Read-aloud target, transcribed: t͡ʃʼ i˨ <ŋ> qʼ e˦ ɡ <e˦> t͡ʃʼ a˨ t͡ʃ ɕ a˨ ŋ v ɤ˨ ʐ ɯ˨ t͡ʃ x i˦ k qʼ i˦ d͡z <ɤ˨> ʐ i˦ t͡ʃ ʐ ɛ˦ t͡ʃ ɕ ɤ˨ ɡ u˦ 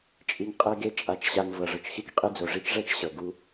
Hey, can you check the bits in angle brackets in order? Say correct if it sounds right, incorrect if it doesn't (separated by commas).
correct, correct, incorrect